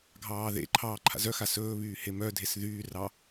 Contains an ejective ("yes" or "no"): no